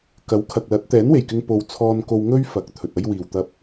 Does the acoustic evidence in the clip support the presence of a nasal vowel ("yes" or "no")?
no